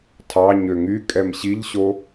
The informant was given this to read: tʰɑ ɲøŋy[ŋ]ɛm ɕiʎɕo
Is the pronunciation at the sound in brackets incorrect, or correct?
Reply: incorrect